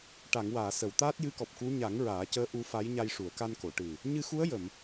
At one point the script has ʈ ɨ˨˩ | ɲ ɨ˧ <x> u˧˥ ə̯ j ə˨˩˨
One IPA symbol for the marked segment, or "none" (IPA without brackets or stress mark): x